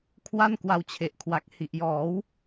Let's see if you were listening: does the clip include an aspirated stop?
yes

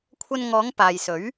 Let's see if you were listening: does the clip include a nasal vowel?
no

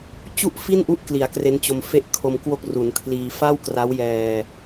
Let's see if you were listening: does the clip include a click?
no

